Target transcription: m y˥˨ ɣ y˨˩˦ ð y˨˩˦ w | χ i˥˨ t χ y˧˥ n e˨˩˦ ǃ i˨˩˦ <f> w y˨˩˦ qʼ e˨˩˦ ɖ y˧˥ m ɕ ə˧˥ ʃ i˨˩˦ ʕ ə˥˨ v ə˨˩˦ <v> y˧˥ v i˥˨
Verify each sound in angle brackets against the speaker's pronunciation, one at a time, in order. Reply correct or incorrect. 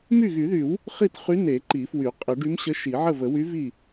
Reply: correct, incorrect: w

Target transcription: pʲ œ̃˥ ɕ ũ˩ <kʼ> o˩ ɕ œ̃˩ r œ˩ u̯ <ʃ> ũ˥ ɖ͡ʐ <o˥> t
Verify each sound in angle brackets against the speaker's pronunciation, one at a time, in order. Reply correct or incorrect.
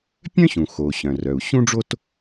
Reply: incorrect: x, incorrect: ɕ, correct

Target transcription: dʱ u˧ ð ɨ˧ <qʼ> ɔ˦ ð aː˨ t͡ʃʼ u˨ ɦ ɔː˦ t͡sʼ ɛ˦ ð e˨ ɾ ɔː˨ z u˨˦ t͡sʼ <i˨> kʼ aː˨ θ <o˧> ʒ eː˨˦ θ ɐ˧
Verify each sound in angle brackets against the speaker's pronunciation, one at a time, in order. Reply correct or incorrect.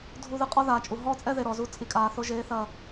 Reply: correct, correct, correct

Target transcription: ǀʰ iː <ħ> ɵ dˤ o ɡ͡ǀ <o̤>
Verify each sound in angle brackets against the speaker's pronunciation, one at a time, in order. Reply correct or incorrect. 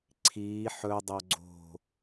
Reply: correct, correct

